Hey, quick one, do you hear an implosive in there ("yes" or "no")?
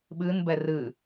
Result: yes